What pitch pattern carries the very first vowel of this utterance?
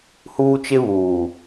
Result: high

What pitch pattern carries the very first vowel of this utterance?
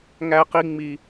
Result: high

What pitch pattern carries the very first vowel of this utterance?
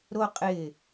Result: high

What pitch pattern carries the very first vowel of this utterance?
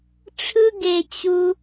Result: high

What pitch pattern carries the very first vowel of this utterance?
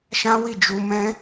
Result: high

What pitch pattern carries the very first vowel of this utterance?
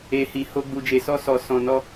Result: low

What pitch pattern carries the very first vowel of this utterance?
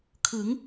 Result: rising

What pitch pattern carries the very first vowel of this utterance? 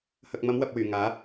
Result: low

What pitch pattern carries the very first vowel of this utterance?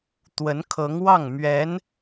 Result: rising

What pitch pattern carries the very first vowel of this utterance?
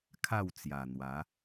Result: falling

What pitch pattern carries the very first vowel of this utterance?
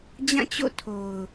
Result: falling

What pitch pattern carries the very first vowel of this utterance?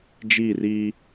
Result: falling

